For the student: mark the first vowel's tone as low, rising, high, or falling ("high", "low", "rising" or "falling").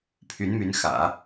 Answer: rising